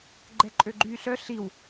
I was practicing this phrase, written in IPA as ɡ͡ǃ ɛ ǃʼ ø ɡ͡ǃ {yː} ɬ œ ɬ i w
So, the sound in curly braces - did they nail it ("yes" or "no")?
yes